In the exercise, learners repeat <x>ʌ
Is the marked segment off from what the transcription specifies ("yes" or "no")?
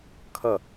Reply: yes